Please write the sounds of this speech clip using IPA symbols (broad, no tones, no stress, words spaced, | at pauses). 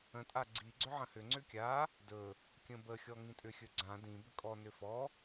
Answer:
ə̃tʼa ɡ͡ǀiɡ͡ǀʏ ʕə̃hʏŋ͡ǀʏ kʲa | dɵ | kʲə̃bəxʲɔ ŋĩtʼʏxʲɵ ɡ͡ǀã dĩ bʏkʼɔnʏ fɔ